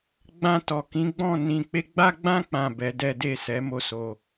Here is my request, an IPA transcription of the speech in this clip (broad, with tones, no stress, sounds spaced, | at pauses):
ɡ͡b ã˧ t ɔ˨ k ĩ˨˦ ɡ͡b ɔ̃˦˨ n ĩ˧ k͡p e˦ ɡ͡b a˧ ɡ͡b ã˧ k͡p ã˨ b ɛ˨˦ d ɛ˦ d e˦˨ s ɛ˨˦ m o˦˨ s o˧